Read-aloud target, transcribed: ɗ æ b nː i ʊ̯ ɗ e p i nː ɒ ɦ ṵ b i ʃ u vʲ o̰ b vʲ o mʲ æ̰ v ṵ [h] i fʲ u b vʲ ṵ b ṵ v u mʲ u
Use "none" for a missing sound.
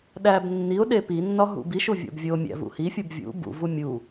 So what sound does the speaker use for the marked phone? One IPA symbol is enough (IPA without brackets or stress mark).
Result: h